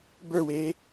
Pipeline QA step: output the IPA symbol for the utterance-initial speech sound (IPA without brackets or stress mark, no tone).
b